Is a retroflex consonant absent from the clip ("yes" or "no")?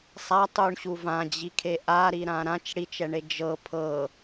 no